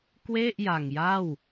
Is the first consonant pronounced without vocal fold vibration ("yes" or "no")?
yes